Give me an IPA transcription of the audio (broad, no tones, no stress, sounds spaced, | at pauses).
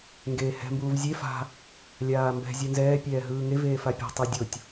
ŋ ɡ eː h ɛ̤ m b uː v zʲ e f a̤ | lʲ aː m b ɛ̤ zʲ u n z ɛː pʲ ɛː ɦ ɯː ŋ e v eː f a pʲ ɛ̤ tˤ o dʲ o tʲ